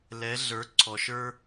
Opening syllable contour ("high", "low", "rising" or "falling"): rising